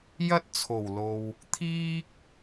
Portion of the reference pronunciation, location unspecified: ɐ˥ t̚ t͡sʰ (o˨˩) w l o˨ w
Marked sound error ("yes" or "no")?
no